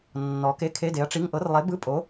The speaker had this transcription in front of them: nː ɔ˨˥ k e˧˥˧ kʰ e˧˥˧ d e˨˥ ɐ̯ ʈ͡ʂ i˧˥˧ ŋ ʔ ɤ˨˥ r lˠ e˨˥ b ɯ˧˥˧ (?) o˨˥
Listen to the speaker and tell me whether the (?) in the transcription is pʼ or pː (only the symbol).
pʼ